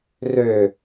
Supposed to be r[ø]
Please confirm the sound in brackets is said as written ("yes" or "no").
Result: yes